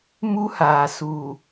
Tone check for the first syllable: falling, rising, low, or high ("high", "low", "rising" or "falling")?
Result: high